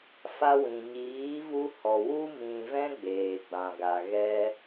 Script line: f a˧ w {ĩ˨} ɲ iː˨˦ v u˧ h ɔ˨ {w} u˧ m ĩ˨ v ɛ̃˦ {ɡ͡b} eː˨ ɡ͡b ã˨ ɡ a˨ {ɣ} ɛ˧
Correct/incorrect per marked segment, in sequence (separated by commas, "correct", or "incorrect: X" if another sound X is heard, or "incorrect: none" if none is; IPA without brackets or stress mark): correct, correct, correct, correct